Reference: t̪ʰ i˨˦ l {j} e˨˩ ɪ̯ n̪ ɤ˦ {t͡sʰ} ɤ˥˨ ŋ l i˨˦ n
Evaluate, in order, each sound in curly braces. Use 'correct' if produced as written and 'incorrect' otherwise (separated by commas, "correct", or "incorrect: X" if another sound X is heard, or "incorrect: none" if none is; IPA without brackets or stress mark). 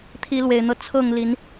incorrect: w, correct